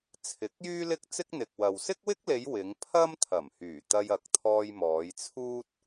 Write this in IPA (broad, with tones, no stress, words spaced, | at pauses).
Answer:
t͡sʰɪ˨˥k̚jyː˥ lɪ˥k̚t͡sɪ˥k̚n̪ɪ˨k̚ wɐ˨w sɪ˥k̚wɪ˥k̚le˨˧j wɪ˨˧ŋpʰɐ˥m t̪ʰɐ˨˩mhyː˨˩t̪ɐ˧j ɐ˨˥k̚t̪ʰɔː˧j mɔː˨˧jt͡sʰuː˥t̚